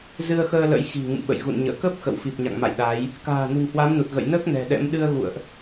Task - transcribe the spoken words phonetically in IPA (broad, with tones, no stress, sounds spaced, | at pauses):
z ɨ˧ ə̯ x əː˧ l ə̰˧˥ j x i̤˨˩ ŋ ɨ̰˧˨ m ɓ ə̰˧˨ j ɣ ṵ˧˨ n ɲ ə̰ː˧˨ k ə˦˥ p̚ x ə̰˧˨ w f i˨˩ p̚ ɲ a̰˧˨ ŋ m a̰˧˨ j ɗ a˨˦ j | k a̤ː˨˩ n ṳ˨˩ ŋ h w a˨˦ m n u˨˩ t̚ ɣ ə̰˧˨ j n əː˦˥ k̚ n ɛ̤˨˩ ɗ ɛ̰˧˥ m ɗ ɨ˧ ə̯ ɣ ṵ˧˨ ə̯ ʔ